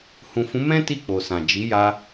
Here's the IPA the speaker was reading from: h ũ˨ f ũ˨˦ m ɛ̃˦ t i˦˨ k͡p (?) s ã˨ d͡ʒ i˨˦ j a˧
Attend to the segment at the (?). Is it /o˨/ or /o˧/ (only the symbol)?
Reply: o˨